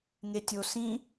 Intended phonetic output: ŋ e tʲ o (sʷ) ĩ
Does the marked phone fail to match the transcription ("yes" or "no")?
yes